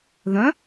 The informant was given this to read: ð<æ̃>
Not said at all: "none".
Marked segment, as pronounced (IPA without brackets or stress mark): œ̃